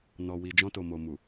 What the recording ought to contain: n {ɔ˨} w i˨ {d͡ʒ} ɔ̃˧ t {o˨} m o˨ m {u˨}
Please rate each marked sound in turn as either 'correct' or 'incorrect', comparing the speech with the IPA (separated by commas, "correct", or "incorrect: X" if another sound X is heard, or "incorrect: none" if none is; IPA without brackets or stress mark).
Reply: correct, correct, correct, correct